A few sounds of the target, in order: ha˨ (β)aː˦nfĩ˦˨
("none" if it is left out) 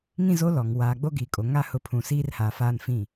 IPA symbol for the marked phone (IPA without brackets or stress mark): f